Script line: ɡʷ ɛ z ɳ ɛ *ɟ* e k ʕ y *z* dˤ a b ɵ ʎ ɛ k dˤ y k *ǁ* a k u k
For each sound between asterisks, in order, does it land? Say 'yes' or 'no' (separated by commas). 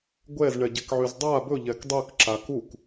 yes, yes, yes